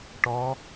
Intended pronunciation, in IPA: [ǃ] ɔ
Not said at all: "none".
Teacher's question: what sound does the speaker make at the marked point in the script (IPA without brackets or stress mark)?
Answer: ʈ